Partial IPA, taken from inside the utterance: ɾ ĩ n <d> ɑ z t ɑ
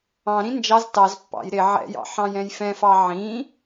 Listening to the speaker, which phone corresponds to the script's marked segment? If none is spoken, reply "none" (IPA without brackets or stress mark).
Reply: d͡ʒ